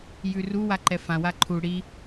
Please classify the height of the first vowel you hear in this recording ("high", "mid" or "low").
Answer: high